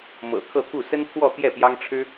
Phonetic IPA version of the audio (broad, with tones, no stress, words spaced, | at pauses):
mɤ̰˨˩ kʰɤ˥˧t̪ʰu˥˩ sə˥npʰwɔ˥˧ t̪jɛ˥˩pjɑ˥ŋ ʈ͡ʂʰɻ̩˥